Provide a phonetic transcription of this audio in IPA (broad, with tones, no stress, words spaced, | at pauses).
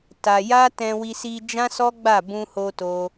ta˧ja˦ tɛ̃˧wi˧si˧ d͡ʒã˦sɔ˦ɡ͡ba˦˨ bũ˧ho˧ to˦